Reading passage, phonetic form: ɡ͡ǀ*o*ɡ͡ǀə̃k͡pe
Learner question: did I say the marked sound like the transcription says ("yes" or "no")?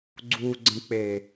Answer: no